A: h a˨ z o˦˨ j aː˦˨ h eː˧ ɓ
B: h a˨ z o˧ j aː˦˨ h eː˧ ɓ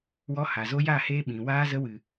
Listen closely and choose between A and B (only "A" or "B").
B